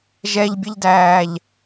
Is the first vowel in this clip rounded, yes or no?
no